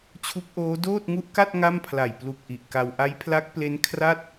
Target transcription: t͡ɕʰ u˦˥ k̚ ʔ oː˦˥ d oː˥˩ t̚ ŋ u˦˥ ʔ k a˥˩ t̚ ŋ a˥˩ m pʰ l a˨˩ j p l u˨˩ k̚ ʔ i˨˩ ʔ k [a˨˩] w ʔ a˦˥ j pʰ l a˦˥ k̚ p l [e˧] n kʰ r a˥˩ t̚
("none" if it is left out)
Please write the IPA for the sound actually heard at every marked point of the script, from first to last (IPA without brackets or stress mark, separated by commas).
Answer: a˧, e˦˥